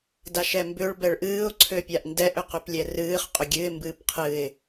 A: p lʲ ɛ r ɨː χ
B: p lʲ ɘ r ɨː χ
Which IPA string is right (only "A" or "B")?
A